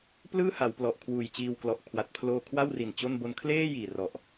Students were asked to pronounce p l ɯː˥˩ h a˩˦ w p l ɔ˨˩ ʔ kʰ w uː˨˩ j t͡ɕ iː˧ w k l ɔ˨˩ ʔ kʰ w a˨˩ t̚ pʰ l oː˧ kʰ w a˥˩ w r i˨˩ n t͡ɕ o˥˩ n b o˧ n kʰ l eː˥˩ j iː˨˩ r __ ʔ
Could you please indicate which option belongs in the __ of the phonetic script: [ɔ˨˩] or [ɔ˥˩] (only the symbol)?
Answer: ɔ˨˩